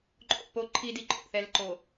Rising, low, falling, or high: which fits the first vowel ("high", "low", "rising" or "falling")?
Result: falling